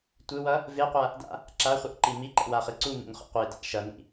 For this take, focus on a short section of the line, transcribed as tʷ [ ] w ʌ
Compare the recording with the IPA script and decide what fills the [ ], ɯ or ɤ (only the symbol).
ɯ